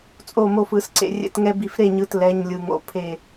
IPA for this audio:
t͡sʼ o˧˩ m o˧˩ f ɯ˧˩˧ s ǀ ḛ˧˩ rʲ ɛ̰˧˩ t ŋ ɛ˦ b i˧˩ f ɾ e˥˩ ɲ ɯ˩˧˩ t l ɛ˩˧˩ ɲ lʲ ɯ˩ ŋ o̰˩˧˩ pʰ e˧˩

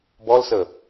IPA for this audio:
b ɔ l s ə

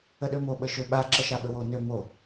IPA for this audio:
ə ɗ ø m o ɓ ə ʃ ø ɓ a ǁ ə ʃ a ɓ ə w o n ø m o

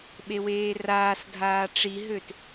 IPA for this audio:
ɓ e w eː r aː s dʱ aː ʈ͡ʂ i ɦ ø t

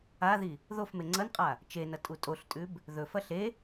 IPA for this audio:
a ð i | ð o f m e ŋ͡ǀ ɐ n qʼ a | t͡ʃ e n ɐ tʼ u tʼ o ɬ tʼ ʉ b | ð ɵ f ɐ ɬ e

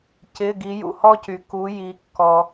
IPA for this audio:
c ɪ˩˧˩ ɡ i˩˧ j ṵ˩ h ɔ˦ c y˩ k u˩˧ j i˩˧ kː ɔ˩

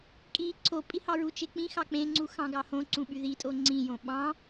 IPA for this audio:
kʼ i ǀʰ o pʼ i h ɑ ɹ u t͡ʃ e k͡p ĩ x ɑ k͡p ẽ ŋ͡ǀ u x ɑ̃ ɡ ɑ h õ ǀ ũ ɓ y ð i tʼ o ŋ͡ǀ ĩ j õ ɓ ɑ̃

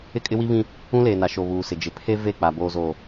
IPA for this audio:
ɪ˦ kʼ ɪ˦ w i˦ β ĩ˦ | ũ˦ l eː˨ n a˨ ʃ o˨ β uː˨ s ɪ˨ d͡ʒ ɪ˨ pʰ e˦ v e˦˨ k͡p a˨ b oː˨ z oː˨

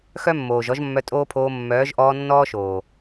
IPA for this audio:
x œ˦ mː oː˨ ʒ ɔ˧ ʒ mː œ˧ tʼ oː˦ pʰ oː˧ mː œː˨˦ ʒ ʔ ɔː˧ nː ɔː˦ ʃ oː˨

